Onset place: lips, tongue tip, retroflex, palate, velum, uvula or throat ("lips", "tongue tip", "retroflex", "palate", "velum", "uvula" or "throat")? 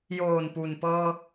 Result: palate